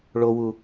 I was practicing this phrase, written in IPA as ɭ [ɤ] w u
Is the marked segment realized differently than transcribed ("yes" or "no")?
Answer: yes